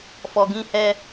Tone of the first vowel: low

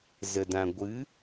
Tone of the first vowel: low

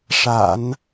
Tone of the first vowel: low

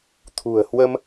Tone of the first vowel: low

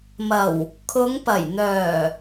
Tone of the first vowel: low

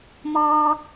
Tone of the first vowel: high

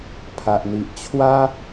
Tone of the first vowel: low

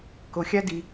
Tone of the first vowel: low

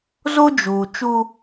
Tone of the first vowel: high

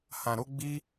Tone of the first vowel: low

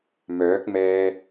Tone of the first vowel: rising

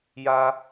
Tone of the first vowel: high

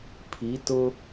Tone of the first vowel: rising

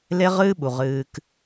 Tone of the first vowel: high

